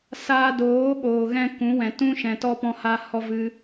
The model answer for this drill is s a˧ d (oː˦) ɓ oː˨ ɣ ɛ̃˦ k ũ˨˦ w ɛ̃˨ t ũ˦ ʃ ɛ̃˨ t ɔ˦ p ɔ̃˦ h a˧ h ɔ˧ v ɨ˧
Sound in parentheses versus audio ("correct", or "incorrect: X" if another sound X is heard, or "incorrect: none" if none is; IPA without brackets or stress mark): incorrect: oː˨˦